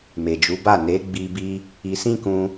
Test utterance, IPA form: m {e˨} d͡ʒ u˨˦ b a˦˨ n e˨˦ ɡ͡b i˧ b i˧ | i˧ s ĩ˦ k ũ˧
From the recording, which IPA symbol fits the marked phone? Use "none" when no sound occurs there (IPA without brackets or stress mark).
e˨